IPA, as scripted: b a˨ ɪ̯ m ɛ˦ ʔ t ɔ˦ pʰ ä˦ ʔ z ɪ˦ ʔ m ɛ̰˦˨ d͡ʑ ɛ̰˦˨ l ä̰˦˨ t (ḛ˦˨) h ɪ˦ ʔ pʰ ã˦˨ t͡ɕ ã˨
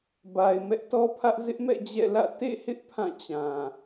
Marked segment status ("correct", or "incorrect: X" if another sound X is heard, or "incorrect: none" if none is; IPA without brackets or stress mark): correct